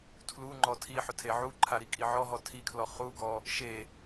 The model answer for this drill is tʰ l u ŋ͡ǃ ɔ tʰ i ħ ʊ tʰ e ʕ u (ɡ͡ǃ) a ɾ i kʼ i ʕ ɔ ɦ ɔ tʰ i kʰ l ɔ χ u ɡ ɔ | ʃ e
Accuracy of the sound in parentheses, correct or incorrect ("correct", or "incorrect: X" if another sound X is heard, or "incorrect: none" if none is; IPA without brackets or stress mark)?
incorrect: ǃʰ